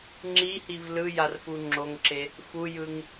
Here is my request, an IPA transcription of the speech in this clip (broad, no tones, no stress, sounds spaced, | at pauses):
ŋ͡ǁ i h i v l ɯ j a r f u ŋ͡ǁ o ŋ ǁ e | f u j ɯ ŋ